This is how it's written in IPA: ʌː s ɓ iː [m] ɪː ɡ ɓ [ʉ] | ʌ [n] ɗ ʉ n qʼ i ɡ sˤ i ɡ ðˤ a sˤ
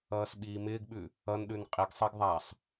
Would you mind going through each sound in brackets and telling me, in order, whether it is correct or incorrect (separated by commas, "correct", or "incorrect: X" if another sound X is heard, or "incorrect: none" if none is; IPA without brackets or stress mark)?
correct, correct, correct